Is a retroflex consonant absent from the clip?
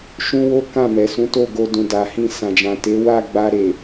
yes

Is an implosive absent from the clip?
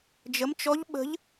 no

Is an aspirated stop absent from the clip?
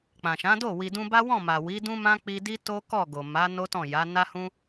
yes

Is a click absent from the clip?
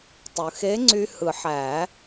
no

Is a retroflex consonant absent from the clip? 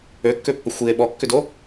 yes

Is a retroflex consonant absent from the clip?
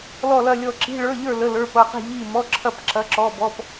no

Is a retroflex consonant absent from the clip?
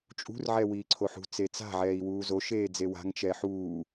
yes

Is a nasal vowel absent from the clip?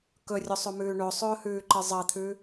yes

